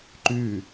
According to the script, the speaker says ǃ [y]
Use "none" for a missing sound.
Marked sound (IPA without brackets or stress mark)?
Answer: y